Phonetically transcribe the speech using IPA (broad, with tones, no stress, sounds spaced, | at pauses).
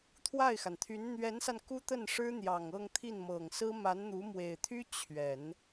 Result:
t̪ʰ w a˥˩ ɪ̯ x a˩ n t̪ʰ y˧˥ n n̪ ɥ ɛ˧˥ n s a˧ n k u˥ t̪ ə˥˩ n ʂ ɻ̩˥ n̪ j ɑ˨˩ ŋ ɤ˥˧ ŋ t̪ʰ i˥˩ n m ɤ˨˩ ŋ s ɹ̩˥ m a˧˥ n n̪ u˧˥ m w e˨˩ ɪ̯ t̪ʰ y˥ t͡ɕʰ ɥ ɛ˨˩˦ n